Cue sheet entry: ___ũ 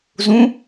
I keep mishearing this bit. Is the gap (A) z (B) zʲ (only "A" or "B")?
A